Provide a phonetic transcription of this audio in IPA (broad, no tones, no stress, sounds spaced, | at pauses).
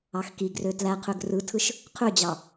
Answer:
ɑ x k i ɡ r ø t l æ qʰ ø ɡ r ɯ tʰ ɯ ʃ | qʰ ø d͡ʑ ɑ